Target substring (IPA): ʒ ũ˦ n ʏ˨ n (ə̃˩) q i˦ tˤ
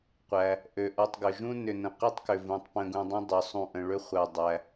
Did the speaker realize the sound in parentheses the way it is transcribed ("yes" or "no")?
yes